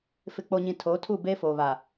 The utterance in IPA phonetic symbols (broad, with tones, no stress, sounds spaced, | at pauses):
f ɪ˨ k͡p o˨ ɲ ĩ˨ tʰ oː˨˦ tʰ u˦˨ b eː˦ f oː˨ β a˨